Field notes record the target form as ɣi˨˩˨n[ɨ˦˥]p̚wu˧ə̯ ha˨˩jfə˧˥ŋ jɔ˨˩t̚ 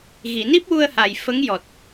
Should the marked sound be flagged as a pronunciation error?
yes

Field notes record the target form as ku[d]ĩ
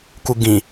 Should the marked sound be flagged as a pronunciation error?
yes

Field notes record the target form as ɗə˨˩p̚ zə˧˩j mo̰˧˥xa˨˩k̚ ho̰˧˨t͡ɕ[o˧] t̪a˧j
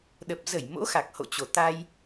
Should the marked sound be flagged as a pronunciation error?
yes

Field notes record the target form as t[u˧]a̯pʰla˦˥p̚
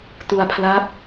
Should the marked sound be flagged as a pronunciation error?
no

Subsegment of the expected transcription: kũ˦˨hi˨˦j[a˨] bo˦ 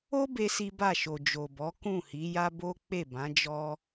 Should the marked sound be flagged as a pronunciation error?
yes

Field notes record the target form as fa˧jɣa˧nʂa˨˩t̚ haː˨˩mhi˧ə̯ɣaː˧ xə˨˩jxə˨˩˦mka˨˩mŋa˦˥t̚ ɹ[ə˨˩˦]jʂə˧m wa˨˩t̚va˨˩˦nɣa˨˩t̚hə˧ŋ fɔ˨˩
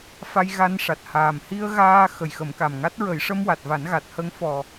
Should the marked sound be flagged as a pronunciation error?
no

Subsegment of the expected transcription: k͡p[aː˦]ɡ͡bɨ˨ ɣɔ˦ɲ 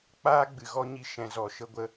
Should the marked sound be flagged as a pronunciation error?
no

